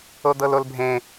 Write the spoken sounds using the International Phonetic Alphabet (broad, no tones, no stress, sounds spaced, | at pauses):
o d̪ ɤ l o l bʱ ẽ